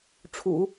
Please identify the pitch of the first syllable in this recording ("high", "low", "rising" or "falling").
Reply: low